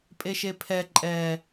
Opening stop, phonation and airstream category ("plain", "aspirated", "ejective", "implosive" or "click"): ejective